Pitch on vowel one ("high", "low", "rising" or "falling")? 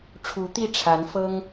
rising